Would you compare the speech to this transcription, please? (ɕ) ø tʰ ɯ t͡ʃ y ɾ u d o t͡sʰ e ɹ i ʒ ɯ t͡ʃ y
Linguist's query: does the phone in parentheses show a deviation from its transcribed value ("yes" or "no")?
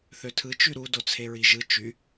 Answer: yes